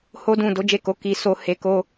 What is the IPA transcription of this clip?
ho˦dũ˦˨ do˨˦d͡ʒe˦˨ko˨˦ ki˧ so˧ he˧ ko˦

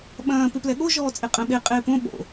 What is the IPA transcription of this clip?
ɓɐ̃ː pɪplɛɠo ʒɔːt͡sʼeqʼə̃ ɓe qʼɪːpõ ɓo̰

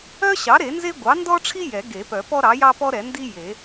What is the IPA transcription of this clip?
œ˥ɕɑ˩˥ ɾe˨˩˦nze˥ ɡʷɑ˩˥ndɔ˥ʈ͡ʂʰi˥ jɛ˨˩˦ɡe˨˩˦ pœ˨˩˦pɔ˥ɾɑ˩˥jɑ˥ pɔ˥ɾɛ˨˩˦ndi˥ je˨˩˦

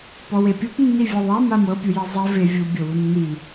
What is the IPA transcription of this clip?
pɔwepʲup nːivʲɛðˤa mamɤ pʲujezˤɛ ve vʲu bʲɤwunːi

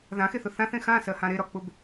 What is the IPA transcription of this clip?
ðãxeθʊ θãθẽ xãsɜhã ɾeɾɒk͡pʊb

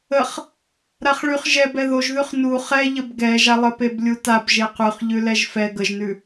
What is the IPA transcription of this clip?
əχ | ɾaχɭyχ ʒɛbɛ ðoʒðʉχ nu χɛʎəb ɡɛʒa lˠəpeblʲutab ʒeqʉχ ʎʉlɛʒfɛ ɡəʒnʉ

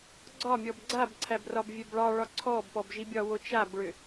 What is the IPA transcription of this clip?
ɡ͡ǀɒmʲɔb ɡ͡ǀabǀʰæbrɒb vʲɛbɭɑɭɒ ǀʰɔbpɔbʒibʲɒ wot͡ʃabɭʏ

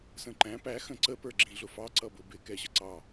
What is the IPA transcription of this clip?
sə̃ǃæ̃ pæ xə̃ǀə pə˞ɡ͡ǁĩɮʊfɑ ǀʌbʊbɪ kɛɕəǀɑ

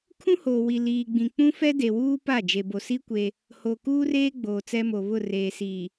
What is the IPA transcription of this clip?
kʰũ˦hoː˨ wi˨liː˨ɡ͡bĩ˨ k͡pũ˦fɛ˦de˨wuː˦ pa˦˨ d͡ʒe˨bo˨si˦ kʷe˦ | ho˨kuː˦reː˦ ɡ͡boː˨t͡sɛ˦mo˨ βʊ˦˨reː˨ siː˨

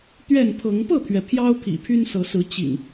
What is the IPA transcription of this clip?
t̪ɥɛ˥˨npʰɤ˨˦ŋ pɤ˥˨t̪ʰɥɛ˩ pʰjɑ˦ʊ̯ pʰḭ˨˩pʰy˦nsɤ˨˦sɹ̩˨˦ t͡ɕḭ˨˩ŋ

